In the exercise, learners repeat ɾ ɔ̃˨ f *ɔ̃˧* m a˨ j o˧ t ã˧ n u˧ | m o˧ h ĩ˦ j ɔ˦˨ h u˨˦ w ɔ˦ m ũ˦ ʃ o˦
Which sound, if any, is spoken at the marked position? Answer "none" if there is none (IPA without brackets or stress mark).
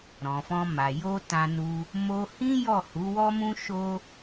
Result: ɔ̃˧